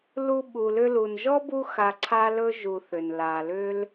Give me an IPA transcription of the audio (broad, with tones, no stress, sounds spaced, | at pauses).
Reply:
l u˦ ɓ u˨ l ʏ˦ l u˨ n ʒ ɔ˥ b u˦ x a˨ ǀʰ a˥ l ɵ˥ ʒ u˨ θ ʏ˩ n l a˩ l ʏ˦ l